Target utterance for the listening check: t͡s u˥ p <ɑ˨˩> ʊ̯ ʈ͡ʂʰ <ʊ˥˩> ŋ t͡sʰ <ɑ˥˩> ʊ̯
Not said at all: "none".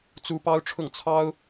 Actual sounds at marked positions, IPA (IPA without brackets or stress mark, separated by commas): ɑ˥, ʊ˥˩, ɑ˥